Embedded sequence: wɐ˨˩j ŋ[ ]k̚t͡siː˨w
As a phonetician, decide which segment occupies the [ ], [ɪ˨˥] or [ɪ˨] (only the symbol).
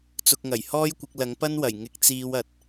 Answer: ɪ˨˥